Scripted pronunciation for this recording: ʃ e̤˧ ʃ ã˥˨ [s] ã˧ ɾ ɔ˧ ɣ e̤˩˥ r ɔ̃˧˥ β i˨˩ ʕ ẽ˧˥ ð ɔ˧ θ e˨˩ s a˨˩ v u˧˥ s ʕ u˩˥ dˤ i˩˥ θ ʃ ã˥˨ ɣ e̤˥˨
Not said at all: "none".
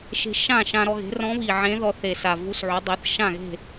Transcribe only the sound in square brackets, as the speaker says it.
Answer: ʃ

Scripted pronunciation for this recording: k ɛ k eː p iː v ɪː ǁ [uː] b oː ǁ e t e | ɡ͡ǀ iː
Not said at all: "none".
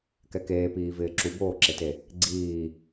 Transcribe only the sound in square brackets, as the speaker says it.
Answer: u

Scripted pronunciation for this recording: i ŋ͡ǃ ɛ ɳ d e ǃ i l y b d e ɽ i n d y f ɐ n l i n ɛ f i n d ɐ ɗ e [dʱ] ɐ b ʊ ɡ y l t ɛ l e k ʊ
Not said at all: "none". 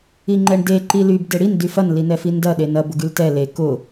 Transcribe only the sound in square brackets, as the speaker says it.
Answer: n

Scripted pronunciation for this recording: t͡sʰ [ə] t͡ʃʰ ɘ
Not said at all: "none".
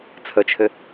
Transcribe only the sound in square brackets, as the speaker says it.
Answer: ə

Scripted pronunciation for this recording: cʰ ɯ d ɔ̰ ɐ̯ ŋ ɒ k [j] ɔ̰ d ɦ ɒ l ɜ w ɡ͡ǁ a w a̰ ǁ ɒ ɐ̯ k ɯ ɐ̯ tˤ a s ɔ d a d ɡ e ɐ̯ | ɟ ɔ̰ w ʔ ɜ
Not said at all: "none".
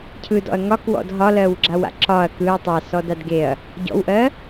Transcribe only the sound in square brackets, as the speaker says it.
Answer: w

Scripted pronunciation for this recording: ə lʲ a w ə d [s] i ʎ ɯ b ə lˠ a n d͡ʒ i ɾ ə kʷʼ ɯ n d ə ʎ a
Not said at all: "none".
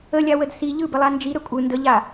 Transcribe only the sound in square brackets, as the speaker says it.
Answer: s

